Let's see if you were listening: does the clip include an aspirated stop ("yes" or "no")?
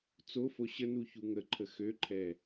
yes